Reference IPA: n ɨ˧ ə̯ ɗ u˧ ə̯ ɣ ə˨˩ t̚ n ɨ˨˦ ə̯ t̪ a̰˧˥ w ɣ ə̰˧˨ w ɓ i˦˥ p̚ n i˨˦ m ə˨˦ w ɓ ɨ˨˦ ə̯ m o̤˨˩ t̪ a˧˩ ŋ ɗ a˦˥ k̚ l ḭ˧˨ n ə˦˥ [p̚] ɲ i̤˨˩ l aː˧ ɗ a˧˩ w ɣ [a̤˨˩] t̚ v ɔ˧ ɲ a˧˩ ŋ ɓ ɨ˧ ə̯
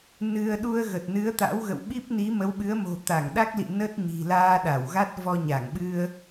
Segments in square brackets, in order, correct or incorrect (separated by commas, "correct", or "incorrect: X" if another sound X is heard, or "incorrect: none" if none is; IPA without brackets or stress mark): incorrect: t̚, incorrect: a˦˥